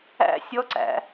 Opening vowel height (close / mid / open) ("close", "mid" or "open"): open